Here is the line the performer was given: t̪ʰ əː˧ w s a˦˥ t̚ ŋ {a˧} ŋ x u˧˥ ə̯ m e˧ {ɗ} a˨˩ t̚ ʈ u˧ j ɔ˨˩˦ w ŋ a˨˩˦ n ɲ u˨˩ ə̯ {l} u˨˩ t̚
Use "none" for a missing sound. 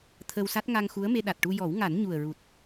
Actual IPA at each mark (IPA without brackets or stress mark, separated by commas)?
a˧, ɗ, ɹ